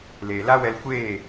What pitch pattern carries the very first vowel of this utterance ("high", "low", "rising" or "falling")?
low